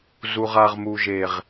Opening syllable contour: high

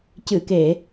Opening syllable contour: low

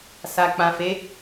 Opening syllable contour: low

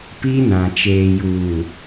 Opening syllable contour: high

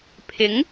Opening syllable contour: rising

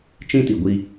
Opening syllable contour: high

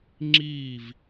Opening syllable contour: falling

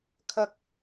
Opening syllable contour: low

